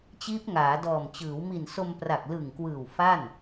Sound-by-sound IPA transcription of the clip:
t͡ɕiː˦˥p̚ŋaː˩˦dɔː˨˩m t͡ɕɯː˩˦wmi˨˩nso˧m pra˨˩k̚lɯ˨˩ŋ kwɯː˨˩w fa˥˩n

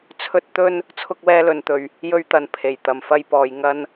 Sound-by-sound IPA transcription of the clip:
t͡sʰɵ˥t̚t̪ɵ˥n | t͡sʰʊ˥k̚wɛː˥lɵ˧nt̪ɵ˧ɥ | jɵ˥ɥt̪ɐ˧n pʰe˨˩j t̪ɐ˨˩mfɐ˧jpɔː˨j ŋɐ˥n

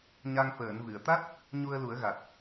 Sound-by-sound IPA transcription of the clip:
ɲa˧ŋ fəː˨˩˨nvɨ˨˩˨ə̯t̪a˦˥t̚ | ɲu˧ə̯lu˨˩˦ə̯ɣa˨˩t̚

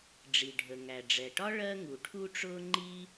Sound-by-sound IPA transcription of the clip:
ɖ͡ʐi˩ɖʱə˩ ŋæ˩ɖ͡ʐɛ˩ʈɒ˥ ɭɜ˥ŋu˩ʈʰu˥ʈ͡ʂʊː˥ ŋ͡ǃi˥

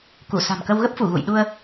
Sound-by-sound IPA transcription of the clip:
ku˧˩ sa̤˨˩mkə˧wɣə˦˥p̚fu˧˩ ɣṵ˧˨jɗu˧ə̯

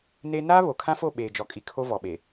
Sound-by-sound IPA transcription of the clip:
neː˦ naː˦βo˨kʰã˦fo˦˨ ɓeː˨d͡ʒɔ˨kʼi˨ kʰo˦vɔ˨ɓe˨

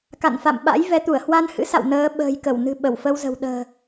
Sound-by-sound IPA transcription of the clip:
ka̰˧˨nfa̰˧˨mɓa̰˧˥j vɛ˨˦t̪u˧˩ə̯ hwa˧nhɨ̰˧˥sa̰˧˨w nəː˨˦ ɓə̤ː˨˩jkə˧˩wnɨ̤˨˩ ɓə˧˩wfə˧wzə̤˨˩w ɗə̤ː˨˩

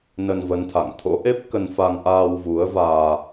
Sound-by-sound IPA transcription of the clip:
nə˧nvə˨˦nt̪ʰa̰˧˨ŋ t̪ʰo̰˧˥ʔe˦˥p̚kə˧n fa˧ŋʔaː˧wvu˨˦ə̯vaː˧

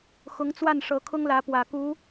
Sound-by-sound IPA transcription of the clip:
xʊ˧˥ŋt͡swa˥˩n ʂɤ˧˥kʰʊ˥ŋlä˧˥ pwä˨˩ ku˧˥

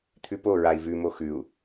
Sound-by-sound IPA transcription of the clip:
t̪ʰʉpoɹai̯ vʉmo xʉu̯

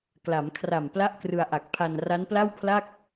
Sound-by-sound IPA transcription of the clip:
kla˩˦mkʰra˨˩m pla˥˩ʔkrɯ˧a̯ʔa˨˩k̚ pʰa˧n ra˦˥npla˥˩wpʰla˥˩k̚

